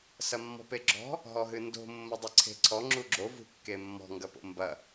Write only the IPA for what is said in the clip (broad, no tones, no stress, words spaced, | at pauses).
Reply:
sɐmːɔ̤peɡ͡ǁɔ̤ | ɦɔɦɨndo̤ mːodˤɨǀʰe̤ǀʰɔ ŋ͡ǁuɡ͡ǁo vṳkːemːɔ̤ ŋɡɐpo̰mbɐ